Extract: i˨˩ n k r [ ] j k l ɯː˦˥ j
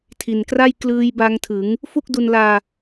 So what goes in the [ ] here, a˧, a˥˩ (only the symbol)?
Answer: a˥˩